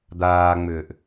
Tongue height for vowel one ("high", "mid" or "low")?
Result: low